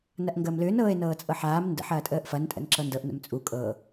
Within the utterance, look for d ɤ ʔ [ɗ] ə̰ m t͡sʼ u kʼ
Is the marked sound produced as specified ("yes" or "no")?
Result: no